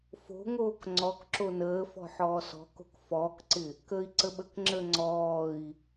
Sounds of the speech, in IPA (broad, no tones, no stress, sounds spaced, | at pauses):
f o̤ ŋ oː k ŋ͡ǀ ɔ k ǁ o n əː f ɔ̤ ħ ɔː s ɔ̤ k o̤ k f ɔː k ǀ ɪ | k əː i̯ ǀ ə ɓ ə k ŋ͡ǁ əː ŋ͡ǀ ɔː i̯